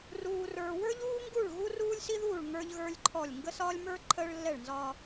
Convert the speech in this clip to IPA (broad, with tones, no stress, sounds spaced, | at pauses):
r uː˨ r ə˞˨ w ə˞˦ ʎ uː˦ ŋ ɡ u˦˨ ɭ ɣ u˦ r uː˦ lʲ s i˦ ð uː˦˨ ɭ ŋ ə˞˦ ʎ ɣ ə˞˦ lʲ ǃʰ ɔ˦˨ lʲ ŋ ɡ ə˦ s ɒː˦ lʲ m ə˞˦ ǃʰ əː˦ ɭ lː ɛ˦˨ ɭ n z ɒː˦